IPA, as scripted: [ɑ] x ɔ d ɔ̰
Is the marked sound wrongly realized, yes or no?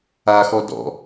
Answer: yes